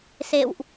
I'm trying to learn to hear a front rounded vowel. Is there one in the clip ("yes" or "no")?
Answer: no